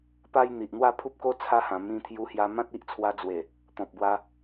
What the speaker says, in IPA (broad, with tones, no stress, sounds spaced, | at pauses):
p a˦ j n̪ i˨ ʔ n̪ w a˥˧ pʰ u˦ p̚ k o˦ t͡sʰ a˦ h ã˨˩ m ĩ˧ t̪ʰ j u˧ h j a˧ m ã˦ t̚ i˦ ʔ t͡sʰ w a˧ d͡z w e˨˩ | t̪ ɔ̃˨ p̚ b w a˧